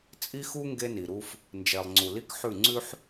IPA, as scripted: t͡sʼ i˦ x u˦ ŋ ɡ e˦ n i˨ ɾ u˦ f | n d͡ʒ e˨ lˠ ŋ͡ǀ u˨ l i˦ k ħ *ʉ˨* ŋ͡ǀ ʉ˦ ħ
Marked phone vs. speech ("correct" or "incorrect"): incorrect